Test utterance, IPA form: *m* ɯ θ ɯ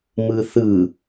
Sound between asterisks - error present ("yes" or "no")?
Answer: no